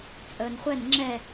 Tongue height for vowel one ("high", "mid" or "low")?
mid